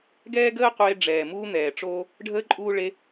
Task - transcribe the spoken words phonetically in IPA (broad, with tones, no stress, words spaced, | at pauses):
ɡɛː˦ɡəː˦qʷeː˧ ɖ͡ʐɛː˨ muː˦n̪ɛː˨ʈ͡ʂoː˦ | ɖʱəː˦ ǃʼuː˦ ɭe˧